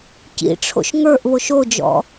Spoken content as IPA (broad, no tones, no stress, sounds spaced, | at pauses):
c ḭ ʈ͡ʂʰ o̰ ʃ ŋ ə˞ ʔ β o ʃ o d͡ʒ ɔ̰